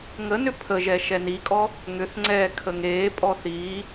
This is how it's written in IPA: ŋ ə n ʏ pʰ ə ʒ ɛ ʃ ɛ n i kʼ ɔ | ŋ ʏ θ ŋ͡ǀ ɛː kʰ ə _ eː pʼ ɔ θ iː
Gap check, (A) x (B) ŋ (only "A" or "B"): B